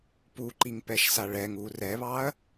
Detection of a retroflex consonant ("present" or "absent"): present